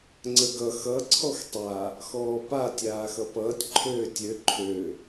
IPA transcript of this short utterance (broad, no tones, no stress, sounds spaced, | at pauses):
ŋ͡ǀ ə ɡ ʌ x ʌ ǀʰ ɔ x tˤ a | x ɔː p a tʲ aː x ʌ p ʌː tʲ ǃʰ øː tʲ ø ǃʰ ø